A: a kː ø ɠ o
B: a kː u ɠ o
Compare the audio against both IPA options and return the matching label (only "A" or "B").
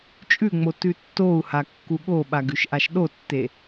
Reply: B